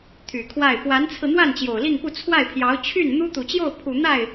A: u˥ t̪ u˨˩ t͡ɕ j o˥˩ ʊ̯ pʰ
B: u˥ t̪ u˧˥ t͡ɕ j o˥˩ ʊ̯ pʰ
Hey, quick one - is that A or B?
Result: A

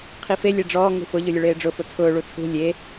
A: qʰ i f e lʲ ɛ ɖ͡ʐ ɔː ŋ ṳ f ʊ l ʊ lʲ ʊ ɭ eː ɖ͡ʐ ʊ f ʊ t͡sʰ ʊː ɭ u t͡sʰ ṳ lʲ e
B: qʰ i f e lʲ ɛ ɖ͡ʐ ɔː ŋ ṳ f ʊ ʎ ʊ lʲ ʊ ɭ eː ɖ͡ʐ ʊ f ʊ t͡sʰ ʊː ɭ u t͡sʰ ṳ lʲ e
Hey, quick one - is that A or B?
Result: B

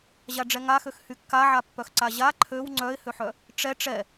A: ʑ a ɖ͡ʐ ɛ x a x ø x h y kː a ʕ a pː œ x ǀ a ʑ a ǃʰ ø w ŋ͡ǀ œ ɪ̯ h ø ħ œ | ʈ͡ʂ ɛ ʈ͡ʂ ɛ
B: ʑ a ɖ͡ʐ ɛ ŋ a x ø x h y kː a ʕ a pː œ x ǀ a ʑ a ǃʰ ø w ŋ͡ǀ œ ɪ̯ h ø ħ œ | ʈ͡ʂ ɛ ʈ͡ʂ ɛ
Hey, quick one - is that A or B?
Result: B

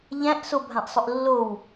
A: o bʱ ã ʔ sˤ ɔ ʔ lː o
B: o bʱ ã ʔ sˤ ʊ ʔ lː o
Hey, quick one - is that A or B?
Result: B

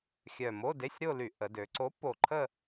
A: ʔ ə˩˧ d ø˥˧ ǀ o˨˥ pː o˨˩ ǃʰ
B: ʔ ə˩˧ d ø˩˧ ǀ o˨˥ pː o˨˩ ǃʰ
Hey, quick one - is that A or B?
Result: B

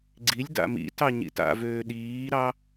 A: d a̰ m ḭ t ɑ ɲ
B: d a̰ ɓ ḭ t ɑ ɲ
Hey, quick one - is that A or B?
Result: A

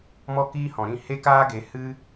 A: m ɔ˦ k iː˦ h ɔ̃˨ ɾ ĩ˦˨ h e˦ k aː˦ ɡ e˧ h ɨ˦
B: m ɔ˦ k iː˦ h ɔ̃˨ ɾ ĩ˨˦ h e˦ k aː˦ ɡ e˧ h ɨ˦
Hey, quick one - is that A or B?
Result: A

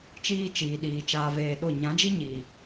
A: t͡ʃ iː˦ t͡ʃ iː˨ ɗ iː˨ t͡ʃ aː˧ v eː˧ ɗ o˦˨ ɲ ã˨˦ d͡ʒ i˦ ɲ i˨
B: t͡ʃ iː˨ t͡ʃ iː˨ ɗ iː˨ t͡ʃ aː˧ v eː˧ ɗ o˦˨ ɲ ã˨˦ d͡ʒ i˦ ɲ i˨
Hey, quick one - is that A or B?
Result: A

